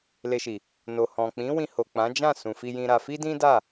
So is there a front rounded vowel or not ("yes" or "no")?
no